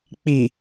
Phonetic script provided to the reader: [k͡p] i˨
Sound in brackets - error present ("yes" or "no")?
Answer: no